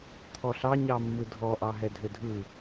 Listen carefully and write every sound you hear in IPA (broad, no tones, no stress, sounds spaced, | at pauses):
t̪ʰ ɔ ɬ ɑ ɲ ɑ mː ɯ dʱ ɔ ʔ ɑ ɦ ɛ dʱ ø dʱ ɯ